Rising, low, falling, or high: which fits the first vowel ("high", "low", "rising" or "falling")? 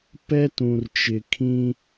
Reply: high